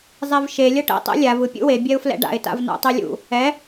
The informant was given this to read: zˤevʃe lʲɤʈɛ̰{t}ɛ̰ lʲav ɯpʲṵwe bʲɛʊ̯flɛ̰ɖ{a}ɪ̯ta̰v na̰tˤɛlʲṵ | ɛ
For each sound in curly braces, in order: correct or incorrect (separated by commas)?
incorrect, incorrect